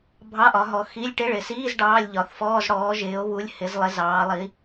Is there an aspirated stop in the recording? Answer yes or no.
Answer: no